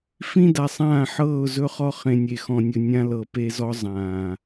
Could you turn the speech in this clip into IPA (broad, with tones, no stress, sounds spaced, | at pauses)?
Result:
f ĩ˦ d a˨ sˤ ãː˦˨ ħ ɤː˦˨ ʊ̯ z ɵ˦ χ ɔ˦ χ ẽ˨ nʲ e˨ x ɔ̃˨ nʲ ɵ˨ nʲ ã˦ l ɤ˨ p e˦ z ɔ˦ zˤ ãː˨